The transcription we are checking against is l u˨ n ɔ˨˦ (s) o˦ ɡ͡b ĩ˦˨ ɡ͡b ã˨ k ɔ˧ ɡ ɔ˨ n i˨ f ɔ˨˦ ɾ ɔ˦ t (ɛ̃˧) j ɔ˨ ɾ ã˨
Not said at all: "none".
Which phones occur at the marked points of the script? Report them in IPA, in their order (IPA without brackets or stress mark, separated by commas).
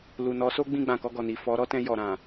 s, ɛ̃˧